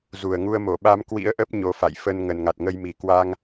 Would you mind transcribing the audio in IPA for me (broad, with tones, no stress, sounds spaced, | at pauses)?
z u˨˩ ə̯ ŋ u˧ ə̯ m o˧˩ ɓ a˧ m k w ḭ˧˥ ə̯ ʔ ə˦˥ p̚ ɲ o˨˦ f a̰˧˨ j f ə˧ n ŋ ə˨˩ n ŋ a˨˩ t̚ ŋ ə˧ j m i˨˩ k w a˧ ŋ